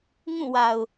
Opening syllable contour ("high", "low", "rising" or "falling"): falling